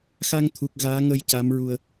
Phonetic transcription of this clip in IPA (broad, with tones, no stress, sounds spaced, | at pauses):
x a˧ ŋ t̪ʰ u˨˩ k̚ ɣ aː˧˥ ŋ ə˧ j c a˧˥ m ɹ u˧ ə̯